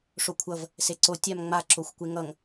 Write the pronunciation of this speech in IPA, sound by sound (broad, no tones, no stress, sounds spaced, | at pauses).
ʂ o kʷʰ ʌ v | s e ǀ o tʲ a m ŋ͡m a ǁ o xʷ kʷ e ŋ ʌ ŋ